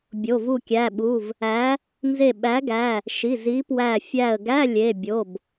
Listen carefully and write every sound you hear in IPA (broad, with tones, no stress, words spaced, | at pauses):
bʲo˩˧˩vu˧˩kʲæ˩˧˩ɓu˩˧˩v | æ˨˥ | nze˧˩ɓæ˨˥ɡæ˩˧˩ | ʃi˩˧˩ zi˨˥pwæ˧˩ fʲæ˧˩ə̯ɡæ˧˥˧ lʲe˩˧˩ bʲo˩˧˩b